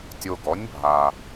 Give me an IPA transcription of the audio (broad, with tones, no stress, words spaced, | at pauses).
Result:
tʲo˧ɡɔ˨˥nʲ bʱa˧